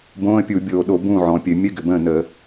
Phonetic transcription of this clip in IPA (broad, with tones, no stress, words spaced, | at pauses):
bõː˧˥˧ə̯pʲu˧˩˧ bʲoː˨˩ɗo˧˩˧ bũː˥˨ʕɔ̃˨˩pʲɘ˧˩˧ mʲɘ˧˥˧ ɡʏ˨˩bə̃ː˥˨ nə˧˩˧